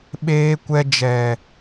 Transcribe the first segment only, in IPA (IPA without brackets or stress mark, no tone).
ɓ